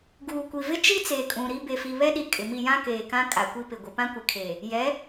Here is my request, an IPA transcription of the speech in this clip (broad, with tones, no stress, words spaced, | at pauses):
ɡuː˨kʷi˨vɪ˦ t͡ʃi˦t͡seː˨kʼũ˨ ɾi˦ be˨fi˨βɛ˦ɗi˨ kʼɪ˨mi˦˨jã˦ keː˨kã˦ kʼa˨kʷi˦pɪ˨ ɡʷɪ˨pã˦kʷɪ˨kʰeː˨ | jɛ˨˦